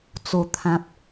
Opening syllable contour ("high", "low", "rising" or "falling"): low